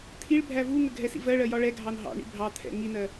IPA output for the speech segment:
t̪ʰ i ɭ bʱ æ v u ŋ ə ɡʱ ɛ s ḭ v ɜ ɭ ɜ j ɒ ɭ ɛ ɡʱ ɑ n ɦ ɑ̰ ɳ ḭ bʱ ɑ t̪ʰ ɛ̰ ŋ i n ɜ

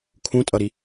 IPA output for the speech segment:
kʰ ũ tʼ ʌ ɾ i

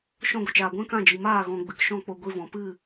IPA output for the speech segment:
ʃ ɔ̃˧ ɡʷ ə˨ t͡ʃ aː˨ ɡʷ ɛ̃˦ k ã˦˨ d͡ʒ i˨ m aː˦˨ ɣ ɔ̃˨ ɡ͡b ɨ˨ k ʃ ɔ̃˦˨ k͡p o˧ ɡʷ i˧ v ɔ̃˨ p ɨ˦˨

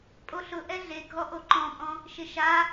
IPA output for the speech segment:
pʼ o ɬ ʊ ʔ ɛ ɮ e ɡʱ ɔ ʔ o ǃ ɔ̃ pʼ ɔ̃ | ʃ ɪ ʃ a

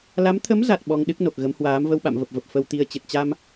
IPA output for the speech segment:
l a˨˦ m t̪ʰ ə˨˦ m z a˨˩ t̚ ɓ ɔ˧ ŋ ɗ ɨ˦˥ k̚ n o˨˩ k̚ ɣ ə˨˦ m h w aː˨˦ m v ə˧ w ɓ a̰˧˨ m v ə˨˩ p̚ v ə˨˩ p̚ f ə˧ w t̪ i˧ ə̯ t͡ɕ ɨ˨˩ t̚ t͡ɕ a˧ m

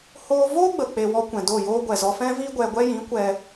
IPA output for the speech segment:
h oː˦ v oː˦ ɡ͡b ə˨ k͡p e˨ w ɔ˧ kʷ ɛ̃˨ d o˦˨ j oː˦ ɡʷ ɛ˨ z ɔ˧ f ɛ̃˦ v iː˦ ɡʷ ɛ˧ ɡʷ ɛ˦ j ĩ˨˦ kʷ ɛ˧

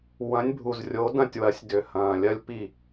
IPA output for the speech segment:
w ɐ̃˨˦ nʲ bʱ u˨˩ z rʲ o˨˦ d ɐ̃˦˨ tʲ w ɐ˨˦ sʲ d ʏ˨˩ h ɐ̃ː˨˩ lʲ ɐ˦ lʲ p i˦˨

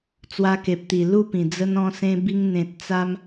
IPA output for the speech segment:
t͡s w a˧ k e˨ p̚ t̪ i˨˩ l u˥˧ p ĩ˨˩ d͡z ə˧ n ɔ̃˧ s ẽ˧ b i˧ ŋ n̪ ẽ˨ t̚ t͡s a˧ m

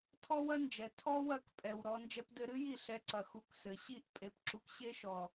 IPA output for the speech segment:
tʰ ɔ˥ w ɐ˥ n d͡ʒ ɛ˨˩ tʰ ɔ˥ w ɐ˥˩ k pʼ ɛ˨˩ w ɾ ɔ˧ n d͡ʒ ɛ˧ p d ɘ˧ ɾ ɨ˥ j i˥˩ ɬ ɛ˧ ǀ ɐ˨˩ x u˧ k s ɘ˨˩ ɕ i˥˩ ʔ pʼ e˧ p ǁ u˧ k ɕ e˥ ʃ ɔ˨˩

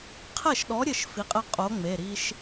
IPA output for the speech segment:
qʰ ɛ˥˩ ʃ ɗ ɔ˨˥ ɾʲ ɘ˥˩ ʃ f i˨˥ qʼ ɛ˦ qʼ o˨˥ ŋ͡m e˩˧˩ ɾ i˦ ʃ

